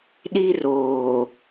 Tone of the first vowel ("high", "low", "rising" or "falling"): high